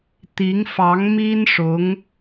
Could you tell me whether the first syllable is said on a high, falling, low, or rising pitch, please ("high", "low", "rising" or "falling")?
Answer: rising